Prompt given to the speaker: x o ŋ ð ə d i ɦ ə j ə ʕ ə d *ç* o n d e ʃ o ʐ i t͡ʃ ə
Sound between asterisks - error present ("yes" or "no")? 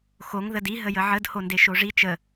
yes